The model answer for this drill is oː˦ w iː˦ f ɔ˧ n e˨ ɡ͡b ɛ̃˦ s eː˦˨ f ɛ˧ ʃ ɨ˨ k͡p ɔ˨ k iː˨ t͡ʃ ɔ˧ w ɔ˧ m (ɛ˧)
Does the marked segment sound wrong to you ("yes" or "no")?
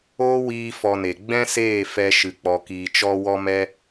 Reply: no